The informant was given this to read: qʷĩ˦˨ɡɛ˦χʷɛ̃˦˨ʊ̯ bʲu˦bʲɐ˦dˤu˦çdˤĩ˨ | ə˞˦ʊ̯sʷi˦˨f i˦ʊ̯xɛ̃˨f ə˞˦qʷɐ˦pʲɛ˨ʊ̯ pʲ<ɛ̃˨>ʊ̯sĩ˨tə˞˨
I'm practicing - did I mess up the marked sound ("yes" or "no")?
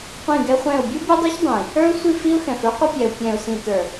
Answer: no